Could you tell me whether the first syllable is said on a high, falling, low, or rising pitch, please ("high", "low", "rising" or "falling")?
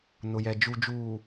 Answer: low